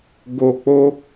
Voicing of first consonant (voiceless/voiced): voiced